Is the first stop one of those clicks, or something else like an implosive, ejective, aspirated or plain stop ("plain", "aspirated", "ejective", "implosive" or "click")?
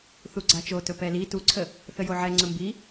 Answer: click